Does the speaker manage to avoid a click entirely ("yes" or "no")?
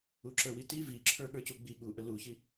no